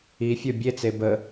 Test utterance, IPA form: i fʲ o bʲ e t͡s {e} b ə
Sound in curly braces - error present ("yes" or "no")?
no